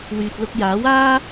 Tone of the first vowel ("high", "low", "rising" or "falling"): low